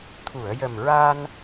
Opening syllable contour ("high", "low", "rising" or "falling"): low